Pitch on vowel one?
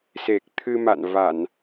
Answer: low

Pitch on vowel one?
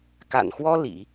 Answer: low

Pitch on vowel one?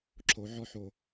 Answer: rising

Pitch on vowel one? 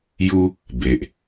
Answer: high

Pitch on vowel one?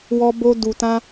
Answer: high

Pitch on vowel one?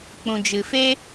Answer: low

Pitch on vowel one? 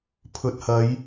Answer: low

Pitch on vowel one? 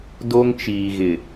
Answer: high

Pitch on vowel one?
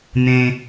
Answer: low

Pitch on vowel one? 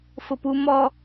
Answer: low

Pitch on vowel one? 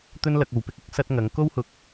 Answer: high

